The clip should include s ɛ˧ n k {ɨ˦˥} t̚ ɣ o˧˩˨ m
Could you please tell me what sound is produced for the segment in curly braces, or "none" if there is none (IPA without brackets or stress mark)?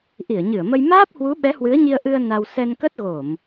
ə˦˥